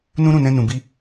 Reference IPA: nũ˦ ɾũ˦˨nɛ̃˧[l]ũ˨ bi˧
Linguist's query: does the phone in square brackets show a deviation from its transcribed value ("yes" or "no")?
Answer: yes